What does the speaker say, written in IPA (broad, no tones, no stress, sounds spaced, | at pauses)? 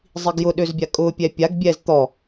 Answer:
zˤ i ɡ j ʊ ɗ ø z bʲ a kʼ ʊ pʲ ɛ pʲ a ɡ bʲ ɛ z t̪ ɔ